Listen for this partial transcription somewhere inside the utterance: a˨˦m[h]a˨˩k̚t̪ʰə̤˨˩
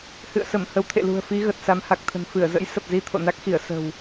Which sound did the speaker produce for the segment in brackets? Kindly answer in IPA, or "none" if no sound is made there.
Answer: h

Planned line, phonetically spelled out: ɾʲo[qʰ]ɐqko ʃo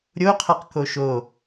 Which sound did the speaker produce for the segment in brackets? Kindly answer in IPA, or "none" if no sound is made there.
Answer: qʰ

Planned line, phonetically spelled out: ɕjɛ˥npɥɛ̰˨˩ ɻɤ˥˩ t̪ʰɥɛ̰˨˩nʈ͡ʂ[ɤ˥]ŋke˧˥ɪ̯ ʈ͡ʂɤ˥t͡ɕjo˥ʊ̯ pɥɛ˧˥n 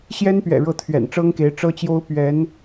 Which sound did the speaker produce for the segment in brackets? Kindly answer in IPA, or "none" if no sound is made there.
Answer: ɤ˥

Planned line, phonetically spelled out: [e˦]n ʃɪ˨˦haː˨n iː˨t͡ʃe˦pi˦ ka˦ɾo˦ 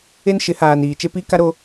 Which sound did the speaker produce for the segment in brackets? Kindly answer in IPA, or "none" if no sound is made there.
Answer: e˦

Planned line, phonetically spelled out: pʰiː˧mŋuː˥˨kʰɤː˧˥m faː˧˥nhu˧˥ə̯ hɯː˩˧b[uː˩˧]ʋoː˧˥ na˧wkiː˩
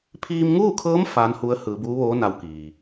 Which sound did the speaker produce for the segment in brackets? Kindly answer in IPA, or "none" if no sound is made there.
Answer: uː˧˥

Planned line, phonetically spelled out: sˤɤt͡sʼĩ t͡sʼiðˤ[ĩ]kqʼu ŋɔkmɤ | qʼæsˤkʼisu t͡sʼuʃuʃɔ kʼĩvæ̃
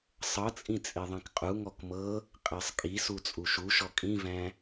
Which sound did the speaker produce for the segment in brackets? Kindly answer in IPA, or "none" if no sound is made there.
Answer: ĩ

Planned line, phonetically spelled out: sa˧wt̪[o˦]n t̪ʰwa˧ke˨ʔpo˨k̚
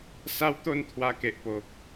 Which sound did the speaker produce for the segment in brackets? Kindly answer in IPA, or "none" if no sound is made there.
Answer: o˧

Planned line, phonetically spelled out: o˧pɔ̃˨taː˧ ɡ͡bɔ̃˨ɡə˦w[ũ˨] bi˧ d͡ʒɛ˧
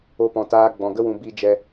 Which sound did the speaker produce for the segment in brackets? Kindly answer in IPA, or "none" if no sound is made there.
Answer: ũ˨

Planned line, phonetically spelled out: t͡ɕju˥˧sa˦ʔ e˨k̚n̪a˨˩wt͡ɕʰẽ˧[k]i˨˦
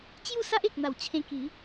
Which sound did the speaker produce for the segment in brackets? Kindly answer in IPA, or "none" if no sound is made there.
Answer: k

